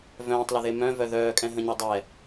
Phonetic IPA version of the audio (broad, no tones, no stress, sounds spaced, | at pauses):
v œ̃ː tˤ l ə ð e m œ̃ v œ ð œː kʼ ɛ̃ ɦ ə̃ ɲ ø dˤ ɛ